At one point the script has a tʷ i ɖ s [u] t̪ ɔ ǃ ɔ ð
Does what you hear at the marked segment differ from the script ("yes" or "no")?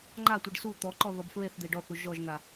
no